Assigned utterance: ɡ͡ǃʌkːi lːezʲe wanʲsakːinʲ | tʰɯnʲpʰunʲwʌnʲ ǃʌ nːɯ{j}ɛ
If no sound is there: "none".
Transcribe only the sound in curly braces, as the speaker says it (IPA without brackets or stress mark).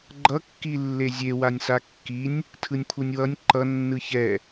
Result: ç